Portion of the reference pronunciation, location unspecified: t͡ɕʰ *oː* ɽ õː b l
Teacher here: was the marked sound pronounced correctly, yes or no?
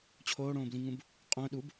yes